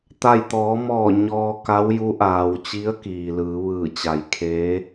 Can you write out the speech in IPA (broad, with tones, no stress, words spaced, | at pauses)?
t̪a˥˨j t̪ɔː˩˧mɔː˧˩ ɲɔː˧ka˧˥wju˧˥ ʔaː˩wt͡ɕi˧˥ə̯ kiː˩lɯː˩˧ ʋɯː˧˩ t͡ɕa˩˧j kʰeː˧˥